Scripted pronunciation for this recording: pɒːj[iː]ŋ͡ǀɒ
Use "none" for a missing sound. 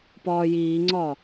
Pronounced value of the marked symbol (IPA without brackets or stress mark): iː